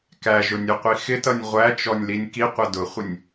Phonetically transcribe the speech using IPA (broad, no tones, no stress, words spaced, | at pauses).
kæʒʊ nʲʊqʷixɪtʌnʲ ʁʷæt͡ʃɔnʲ linʲkiqʷʌ dʊχʷɪnʲ